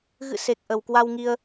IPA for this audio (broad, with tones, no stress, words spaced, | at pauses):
ɣɨ̰˧˨ se˨˩k̚ ʔə˨˩wkwa˧wŋi˧ə̯